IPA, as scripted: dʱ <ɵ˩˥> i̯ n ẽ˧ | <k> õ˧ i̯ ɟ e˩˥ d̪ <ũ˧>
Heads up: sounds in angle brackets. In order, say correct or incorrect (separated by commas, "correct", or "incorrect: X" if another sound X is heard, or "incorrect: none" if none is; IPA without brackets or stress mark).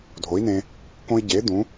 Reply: incorrect: o˩˥, correct, incorrect: ũ˩˥